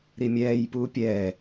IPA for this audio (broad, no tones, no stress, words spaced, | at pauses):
ɾimʲɛːj puːpʲɛː